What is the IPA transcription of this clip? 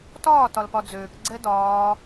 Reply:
tɒː tɒlpɒd͡zøːk ɡ͡ǀɛdɒː

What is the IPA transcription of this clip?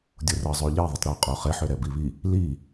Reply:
dʲorə zˤøʎe ðˤətˤɾø qʼoχeħ øɾɛbiβi | li

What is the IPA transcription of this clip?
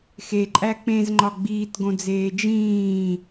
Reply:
xeǃʼæ k͡pẽzŋ͡ǃɒ ɡ͡biːtɡõd͡zeː d͡ʒĩː

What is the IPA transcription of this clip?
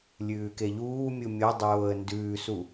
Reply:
lʲʉːkeʎuːmʲu mʲo dˤoːə̯ndʉːsu

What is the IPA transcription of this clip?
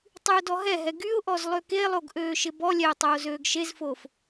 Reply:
tˤyʊ̯dɔɦɛɦɛ ɡyʊ̯ʔɔz lˠøkelˠoɡ ʔøːʃɪbɔlʲɛʊ̯ tˤoːzøːɡʃezfoːf

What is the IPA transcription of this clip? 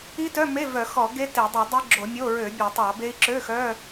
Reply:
i˦˥tœ˧˥˧me˧˥˧ vœ˧˩˧xɔ˧˩˧ɡe˦˥ te˧˩˧dˤi˧˩˧dˤi˦˥ ɡ͡ǁo˧˩˧mʲo˧˥˧ ɹø˧˩˧ bʲø˧˩˧tˤɑ˧˩˧be˦˥i̯ ǁø˧˥˧xœ˧˥˧

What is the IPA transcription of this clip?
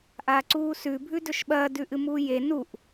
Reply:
ʔaǀuːsʉ bʱʉdɵʃɓɐː dʉʔɨmuːje nuʔ

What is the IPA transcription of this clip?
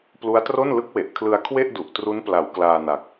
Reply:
plu˦˥a̯tro˥˩n lɯ˦˥k̚ we˨˩ʔ kʰlɯ˧a̯kʰwe˥˩ʔdu˨˩ʔ tru˦˥npla˩˦w klaː˧na˨˩k̚

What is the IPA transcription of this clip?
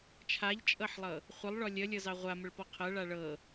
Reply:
t͡ʃʰaʎt͡ʃʼɤħlˠɤ | χʷəlˠɭɔ lʲəlʲɤzɑ ʁʷaməɭpɔ qʰɤɭa ɭɤ

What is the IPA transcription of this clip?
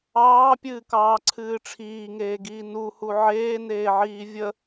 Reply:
ɑːpʲɨːkɑːǀʰɨː ʈ͡ʂʰiːŋeːɡiː nuhu ʕeːneːʕiː vʲə

